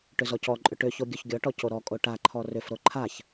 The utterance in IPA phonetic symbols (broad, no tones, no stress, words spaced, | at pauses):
ʈʏzɔcɔǃʼʏ ʈʏço ɡʲoçɡʲɔʈɔ coɾɔkʼo ʈaǃʰɔ rʏfɾo ǃʰaç